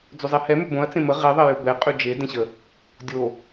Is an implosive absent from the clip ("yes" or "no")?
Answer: yes